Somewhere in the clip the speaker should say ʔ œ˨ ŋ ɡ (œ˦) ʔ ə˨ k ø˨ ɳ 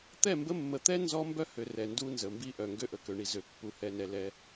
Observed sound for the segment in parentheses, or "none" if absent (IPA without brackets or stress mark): ø˦